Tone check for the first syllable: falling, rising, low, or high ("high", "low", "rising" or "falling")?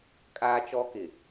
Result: high